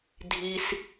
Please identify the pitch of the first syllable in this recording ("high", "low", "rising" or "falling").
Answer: low